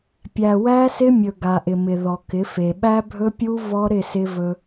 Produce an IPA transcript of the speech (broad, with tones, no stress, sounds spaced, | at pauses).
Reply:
pʲ æ˨ w æ˦ s ɪ˦ mʲ ɵ˨ ɡ a˨ ʔ ɪ˨ m ɪ˨ ð ɔ˨ k ɪ˨˦ f e˨ ɓ æ˦ bʱ ɵ˦ pʲ u˦ v ɔ˦ ɾ ɪ˦˨ s ɪ˦ v ɵ˦